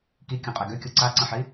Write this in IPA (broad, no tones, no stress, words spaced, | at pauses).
kikʲõqʼe ɡøkʲo ǀaǀə̃ħi